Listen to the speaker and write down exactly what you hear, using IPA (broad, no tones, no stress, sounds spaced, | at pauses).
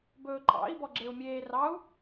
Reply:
b ɵː ǃʼ ɑ̰ i̯ b ɔ ɡ͡ǁ e u̯ mʲ eː r ɑ u̯